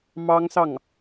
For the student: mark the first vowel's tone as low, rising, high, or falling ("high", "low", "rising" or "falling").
high